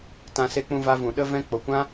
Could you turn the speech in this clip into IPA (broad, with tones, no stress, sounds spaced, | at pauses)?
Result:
t ã˧ s e˧ k͡p ũ˧ v a˧ v ũ˨ ɗ ə˦ v ɛ̃˦ k͡p o˨ kʷ ã˦